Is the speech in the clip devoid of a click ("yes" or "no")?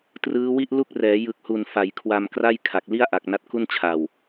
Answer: yes